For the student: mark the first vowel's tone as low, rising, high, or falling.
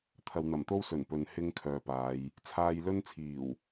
low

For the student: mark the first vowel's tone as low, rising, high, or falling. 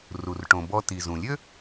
low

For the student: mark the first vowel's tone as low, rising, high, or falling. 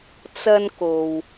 high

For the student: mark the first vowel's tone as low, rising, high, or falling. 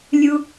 high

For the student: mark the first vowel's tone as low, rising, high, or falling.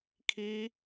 high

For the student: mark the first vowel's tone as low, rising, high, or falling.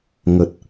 low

